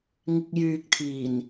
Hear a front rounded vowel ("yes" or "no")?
yes